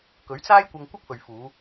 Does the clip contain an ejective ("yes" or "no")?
no